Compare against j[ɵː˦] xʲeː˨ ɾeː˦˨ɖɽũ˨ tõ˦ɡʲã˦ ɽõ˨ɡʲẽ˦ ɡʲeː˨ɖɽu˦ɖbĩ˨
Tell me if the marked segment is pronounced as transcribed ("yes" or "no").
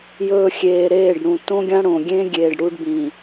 no